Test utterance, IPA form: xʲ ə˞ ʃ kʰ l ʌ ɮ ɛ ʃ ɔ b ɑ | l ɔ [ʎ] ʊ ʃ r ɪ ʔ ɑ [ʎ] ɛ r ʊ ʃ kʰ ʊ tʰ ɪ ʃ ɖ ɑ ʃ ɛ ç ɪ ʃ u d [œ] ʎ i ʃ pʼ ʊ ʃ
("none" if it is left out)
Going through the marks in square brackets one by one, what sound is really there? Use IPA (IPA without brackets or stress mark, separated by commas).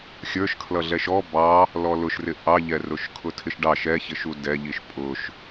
l, ʎ, ɛ